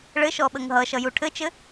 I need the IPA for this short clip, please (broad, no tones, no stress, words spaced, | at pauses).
ɭɘʃɔ ɓəŋɦʌʃʌ juʈʰɘt͡ʃɘ